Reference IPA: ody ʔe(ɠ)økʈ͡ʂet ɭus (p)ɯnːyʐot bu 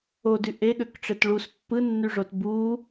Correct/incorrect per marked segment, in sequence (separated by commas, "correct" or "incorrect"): correct, incorrect